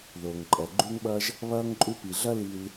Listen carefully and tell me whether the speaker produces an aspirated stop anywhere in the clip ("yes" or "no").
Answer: no